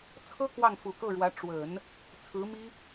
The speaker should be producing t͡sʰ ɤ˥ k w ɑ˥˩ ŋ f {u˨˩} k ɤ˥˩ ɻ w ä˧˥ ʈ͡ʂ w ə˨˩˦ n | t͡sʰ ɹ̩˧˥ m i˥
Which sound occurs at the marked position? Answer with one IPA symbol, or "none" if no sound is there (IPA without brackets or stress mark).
u˨˩